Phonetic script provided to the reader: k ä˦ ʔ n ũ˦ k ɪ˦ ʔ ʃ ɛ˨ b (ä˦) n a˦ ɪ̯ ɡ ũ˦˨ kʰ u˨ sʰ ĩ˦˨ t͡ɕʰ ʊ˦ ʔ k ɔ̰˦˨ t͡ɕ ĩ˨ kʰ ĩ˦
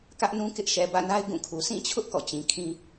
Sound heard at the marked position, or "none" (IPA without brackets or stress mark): ä̰˦˨